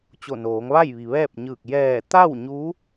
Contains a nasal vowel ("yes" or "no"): no